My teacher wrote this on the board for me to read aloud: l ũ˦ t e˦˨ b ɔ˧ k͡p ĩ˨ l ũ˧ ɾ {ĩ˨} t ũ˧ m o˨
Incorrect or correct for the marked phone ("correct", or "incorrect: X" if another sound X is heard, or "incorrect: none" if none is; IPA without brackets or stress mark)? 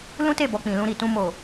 incorrect: i˨